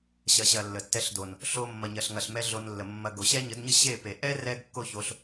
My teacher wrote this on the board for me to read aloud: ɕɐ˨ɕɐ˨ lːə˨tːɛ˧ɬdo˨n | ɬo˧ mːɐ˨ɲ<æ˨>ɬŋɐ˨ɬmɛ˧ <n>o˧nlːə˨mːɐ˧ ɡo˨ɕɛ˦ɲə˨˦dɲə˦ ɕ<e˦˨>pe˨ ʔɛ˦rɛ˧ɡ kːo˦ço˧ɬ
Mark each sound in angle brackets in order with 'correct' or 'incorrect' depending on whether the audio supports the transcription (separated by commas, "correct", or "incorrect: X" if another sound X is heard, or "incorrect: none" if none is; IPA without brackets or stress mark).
incorrect: ɐ˨, incorrect: ɮ, correct